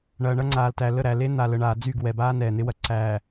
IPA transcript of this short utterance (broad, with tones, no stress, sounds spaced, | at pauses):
ɳ ɐː˨ ɳ ɐ˦ ŋ͡ǀ aː˨ l t æ˨ l ə˦˨ ɾ æ˨ l e˦ n̪ a˨ l ə˨ ɳ aː˨ d͡z y˦˨ ɡ w ɛ˨ b aː˦ n ɛː˨ n̪ ɪ˦ w ɐ˨ ǀ æː˨